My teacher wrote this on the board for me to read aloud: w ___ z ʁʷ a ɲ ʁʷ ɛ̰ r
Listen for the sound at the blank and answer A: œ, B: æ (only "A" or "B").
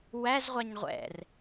B